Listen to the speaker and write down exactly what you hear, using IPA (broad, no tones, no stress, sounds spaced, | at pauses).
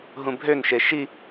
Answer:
ɦ ũ bʱ ø n ʃ e ʃ i